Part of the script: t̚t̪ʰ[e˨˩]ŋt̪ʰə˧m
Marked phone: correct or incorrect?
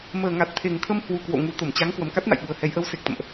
correct